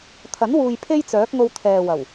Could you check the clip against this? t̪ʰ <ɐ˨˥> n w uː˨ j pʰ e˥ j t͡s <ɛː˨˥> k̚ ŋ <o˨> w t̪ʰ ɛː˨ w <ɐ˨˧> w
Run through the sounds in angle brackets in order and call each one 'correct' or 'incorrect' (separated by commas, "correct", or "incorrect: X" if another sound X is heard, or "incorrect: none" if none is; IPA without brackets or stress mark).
correct, incorrect: œː˨˥, incorrect: o˧, incorrect: ɐ˨˩